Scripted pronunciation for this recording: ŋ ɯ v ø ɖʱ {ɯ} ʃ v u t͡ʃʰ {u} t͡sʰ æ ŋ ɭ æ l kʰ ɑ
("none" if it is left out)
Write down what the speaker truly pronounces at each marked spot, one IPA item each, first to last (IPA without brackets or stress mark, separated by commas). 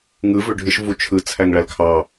ɯ, ɯ